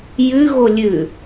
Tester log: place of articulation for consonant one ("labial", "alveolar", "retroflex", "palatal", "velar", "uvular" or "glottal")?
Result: palatal